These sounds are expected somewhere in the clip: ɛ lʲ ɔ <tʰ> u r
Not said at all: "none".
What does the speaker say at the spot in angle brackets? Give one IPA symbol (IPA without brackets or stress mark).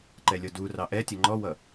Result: d